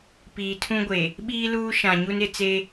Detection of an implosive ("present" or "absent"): present